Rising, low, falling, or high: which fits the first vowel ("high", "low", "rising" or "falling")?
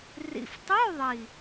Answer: low